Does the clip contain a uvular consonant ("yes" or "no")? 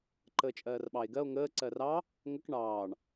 no